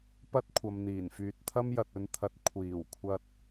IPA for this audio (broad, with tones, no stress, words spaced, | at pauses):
pɐ˥t̚kʷʰɐ˨mn̪iː˨˩nfyː˨t̚ t̪ʰɐ˥mjɐ˨t̚ɵ˧nt̪ʰɐ˨˥t̚ kʷʰiː˨˩wkʷʰɐ˧t̚